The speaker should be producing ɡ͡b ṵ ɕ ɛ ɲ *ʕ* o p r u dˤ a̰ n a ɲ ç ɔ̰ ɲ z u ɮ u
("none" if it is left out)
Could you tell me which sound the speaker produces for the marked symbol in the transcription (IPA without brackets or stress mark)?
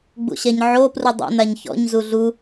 ʕ